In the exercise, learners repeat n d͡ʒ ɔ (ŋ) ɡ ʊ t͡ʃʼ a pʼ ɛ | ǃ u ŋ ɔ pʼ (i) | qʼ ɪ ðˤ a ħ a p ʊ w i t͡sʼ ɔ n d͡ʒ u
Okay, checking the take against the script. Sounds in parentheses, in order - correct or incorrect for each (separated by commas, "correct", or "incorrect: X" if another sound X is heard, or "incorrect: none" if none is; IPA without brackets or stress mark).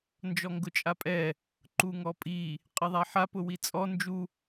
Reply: correct, correct